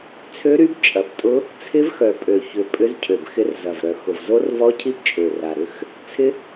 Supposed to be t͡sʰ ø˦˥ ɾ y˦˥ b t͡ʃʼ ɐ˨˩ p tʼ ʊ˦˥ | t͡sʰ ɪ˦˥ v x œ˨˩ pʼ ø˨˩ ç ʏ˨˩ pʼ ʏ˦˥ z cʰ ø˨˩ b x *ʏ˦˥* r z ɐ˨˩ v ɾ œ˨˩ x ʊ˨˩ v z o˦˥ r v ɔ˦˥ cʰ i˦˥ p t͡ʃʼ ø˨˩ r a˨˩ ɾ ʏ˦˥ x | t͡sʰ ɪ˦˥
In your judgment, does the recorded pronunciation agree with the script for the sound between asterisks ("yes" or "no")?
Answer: no